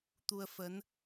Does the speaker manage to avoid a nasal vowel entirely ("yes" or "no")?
yes